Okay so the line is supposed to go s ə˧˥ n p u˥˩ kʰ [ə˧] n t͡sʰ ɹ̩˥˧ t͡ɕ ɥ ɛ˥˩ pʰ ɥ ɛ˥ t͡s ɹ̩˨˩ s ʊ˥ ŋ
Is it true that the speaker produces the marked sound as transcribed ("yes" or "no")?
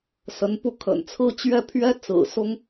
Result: no